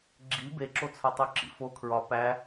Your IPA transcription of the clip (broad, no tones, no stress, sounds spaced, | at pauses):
ɡ͡ǁ i b e ǁ o t͡sʰ ɒ tˤ o ǁ ḭ f o kʰ ɹ ɒ p æ